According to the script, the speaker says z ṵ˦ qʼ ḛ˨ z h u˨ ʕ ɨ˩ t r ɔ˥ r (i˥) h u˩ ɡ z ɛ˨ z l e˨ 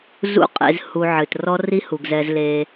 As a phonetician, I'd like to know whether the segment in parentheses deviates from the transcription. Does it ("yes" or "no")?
no